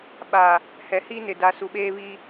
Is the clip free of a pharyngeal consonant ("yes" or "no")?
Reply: yes